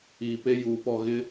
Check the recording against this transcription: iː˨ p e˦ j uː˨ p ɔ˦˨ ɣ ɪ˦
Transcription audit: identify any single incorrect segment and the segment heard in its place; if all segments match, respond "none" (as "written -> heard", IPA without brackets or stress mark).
none